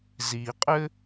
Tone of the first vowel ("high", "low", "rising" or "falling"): low